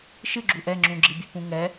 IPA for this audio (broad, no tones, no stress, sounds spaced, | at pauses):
ʃ ɨ ɡ͡ǁ u ʔ ɛ ŋ͡ǁ ũ ɡ͡ǁ i bʲ ɛ p ũ ŋ ɛ